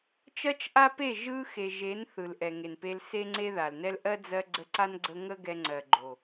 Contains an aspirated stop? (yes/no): no